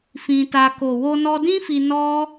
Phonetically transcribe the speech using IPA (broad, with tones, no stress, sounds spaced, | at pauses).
f ĩ˧ t a˧ k o˨ w o˧ n ɔ˧ d ĩ˦ f i˧ n ɔ˦